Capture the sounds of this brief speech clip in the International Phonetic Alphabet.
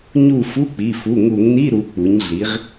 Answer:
ɲ u˦˨ f u˧˥˧ k͡p i˩˧˩ f u˩˧˩ ŋ u˧˩˧ ŋ n i˧˥˧ ɾ u˩˧ k͡p u˩˧ ɲ ɮ i˩˧ ʁ

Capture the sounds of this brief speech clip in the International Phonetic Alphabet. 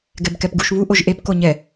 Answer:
ɡ ɛ b k ɛ p ɡ u ʃ β u ʔ o ʒ ʔ e p k o ɲ ɛ

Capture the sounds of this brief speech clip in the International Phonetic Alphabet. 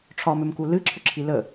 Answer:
ʈ͡ʂʰ ɒ m ʏ m k u l ɨ ǁʰ ʏ ǁʰ i l ə

